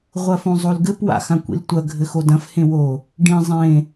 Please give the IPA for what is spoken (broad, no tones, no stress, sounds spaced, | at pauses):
ʁʷ ɐ f õ zˤ o l ɡ ɘ p w a̰ x ã kʷ ḭ l tʷ ɐ ɡʱ ɘ x o d ɐ̃ f h ẽ w o | ɖ ĩ zˤ ẽ